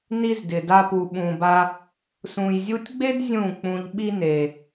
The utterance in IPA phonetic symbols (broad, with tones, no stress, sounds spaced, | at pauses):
n i˦ z d ɪ˨ d a˧ p u˨ ɓ ũ˨ b a˧ | s ũ˨ j zʲ u˧ tʲ ɡ͡b e˦ d zʲ ũ˦˨ k͡p ũ˧ ʎ ɓ i˦ n e˨